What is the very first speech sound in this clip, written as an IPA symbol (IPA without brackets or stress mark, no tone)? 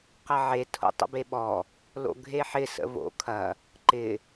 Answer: q